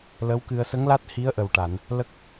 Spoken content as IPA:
l ə˧˥ w k ɨ˧ ə̯ s ə˧˥ ŋ l a˦˥ t̚ h i˧˥ ə̯ ʔ ə˨˩ w ʈ a˨˩˨ n | l ə˦˥ k̚

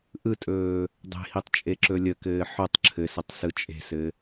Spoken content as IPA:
ʔ ɯ tʼ ɵː | dˤ e̤ h i tˤ t͡ʃʼ e ǁ ɵ lʲ ə k ɘː ħ o tˤ ǁʰ ɘ s ɘ tˤ s ɯ t͡ʃʼ e̤ s ɘ

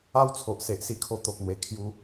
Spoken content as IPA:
a˦ w t͡sʰ o˨ ʔ s e˨ ʔ s i˧ kʰ o˧ t̪ o˨ k̚ n̪ w e˨˩ kʰ j u˧

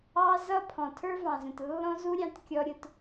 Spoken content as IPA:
ɑ˦ z ʌ˦ pʰ ɔ̃˨ tʰ ə˞˦ v ɑ̃˨ z ə̃˨ t lː ɔ̃˦ z u˦ ɾʲ ɑ̃˧ t kʲ ɔ˦ ɾʲ ʊ˧ t

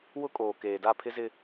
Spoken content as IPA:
w ʊ˦ kʼ oː˨ k eː˨ d a˦˨ pʰ ɪ˦ z ɪ˦

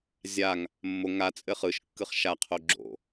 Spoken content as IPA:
zʲ a ŋ | mː o ŋ a t͡sʼ ɘ χ ɯ ʃ kː ɯ χ ʃ a qʰ o ɡ͡ǁ o̰

